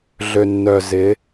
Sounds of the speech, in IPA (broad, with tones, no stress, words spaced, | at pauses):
ɮø˨nːœ˨ zɪ˨˦